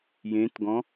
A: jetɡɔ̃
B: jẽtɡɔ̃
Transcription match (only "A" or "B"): B